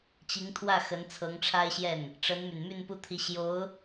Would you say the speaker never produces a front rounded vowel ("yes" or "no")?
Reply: no